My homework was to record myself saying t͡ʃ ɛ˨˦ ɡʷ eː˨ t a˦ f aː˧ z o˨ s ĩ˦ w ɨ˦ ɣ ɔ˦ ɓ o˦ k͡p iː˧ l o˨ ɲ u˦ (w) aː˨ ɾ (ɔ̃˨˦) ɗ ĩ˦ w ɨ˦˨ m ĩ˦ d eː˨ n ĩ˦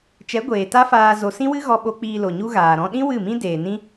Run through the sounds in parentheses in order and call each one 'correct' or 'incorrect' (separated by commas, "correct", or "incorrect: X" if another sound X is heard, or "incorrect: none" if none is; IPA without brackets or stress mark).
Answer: incorrect: ɣ, incorrect: ɔ̃˧